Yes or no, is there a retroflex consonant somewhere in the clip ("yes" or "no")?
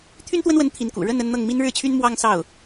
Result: yes